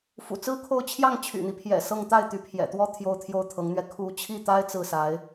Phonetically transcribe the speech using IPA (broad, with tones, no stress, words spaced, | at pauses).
fṵ˨˩t͡sɹ̩˥ kʰo˥˧ʊ̯ t͡ɕʰjɑ˥˩ŋt͡ɕʰy̰˨˩n̪i˦pʰjɛ̰˨˩ sɤ˥˧ŋ t̪a˥˩ɪ̯t̪y˧˥pʰjɛ̰˨˩t̪wɔ˥˧ t̪ʰjo˥˧ʊ̯t̪ʰjo˥˩ʊ̯t̪ʰɤ˧˥ŋn̪ɥɛ˧ kʰu˧˥t͡ɕʰi˥˩t̪a˥ɪ̯ t͡sɹ̩˥˩sa˧˥ɪ̯